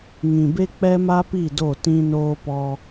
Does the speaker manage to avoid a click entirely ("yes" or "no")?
yes